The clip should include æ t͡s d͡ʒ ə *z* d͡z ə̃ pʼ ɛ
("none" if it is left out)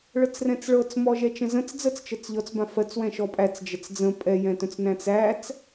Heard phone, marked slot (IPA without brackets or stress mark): t͡s